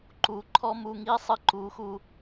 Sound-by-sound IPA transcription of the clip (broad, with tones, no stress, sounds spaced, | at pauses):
ǃ u˨˦ ǃʰ ɔ˦ m u˧ ŋ i˦ sˤ ɨ˧ ǃ u˨˦ x u˧